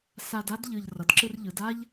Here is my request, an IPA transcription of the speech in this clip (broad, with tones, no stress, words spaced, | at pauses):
sa˧da˥dʎɯ˨˩ʎ rʌ˩˧dǁɯ˧rʎɯ˩˧da˥ʎ